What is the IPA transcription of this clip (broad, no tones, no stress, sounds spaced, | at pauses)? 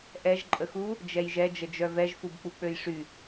ʔ ɛ ʒ ǃʼ ə x u | d͡ʒ ɛ j ʒ ɛ d͡ʒ ə d͡ʒ œ v ɛ ʒ f u b k͡p u k͡p ø j ʂ y